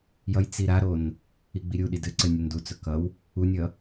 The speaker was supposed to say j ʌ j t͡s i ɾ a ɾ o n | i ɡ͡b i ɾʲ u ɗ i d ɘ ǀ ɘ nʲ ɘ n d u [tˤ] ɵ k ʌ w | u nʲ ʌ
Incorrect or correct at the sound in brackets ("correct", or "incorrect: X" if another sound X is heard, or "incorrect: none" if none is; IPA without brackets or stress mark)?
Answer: incorrect: t͡s